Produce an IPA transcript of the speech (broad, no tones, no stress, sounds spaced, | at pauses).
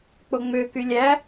k͡p o ŋ͡m ø k y lʲ æ